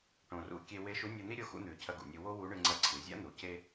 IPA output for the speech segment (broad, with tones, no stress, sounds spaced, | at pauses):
ʈ õ˩ r ṵ˧ kʲ e˧ w e˧˥ ʃ u˧˥ nʲ o˧ n̪ i˥ ɾʲ o˧ x ṵ˧ n̪ ʉ˩ cʰ ɐ˧ ɡ ṵ˩ nʲ o˧ w o˥ w u˧˥ ɳ ɨ˧ ŋ͡ǀ ɐ˧˥ ǀʰ ɨ˩˧ zʲ a̰˥ n̪ u˩˧ c e˥